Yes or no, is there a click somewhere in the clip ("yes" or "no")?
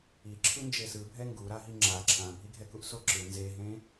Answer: yes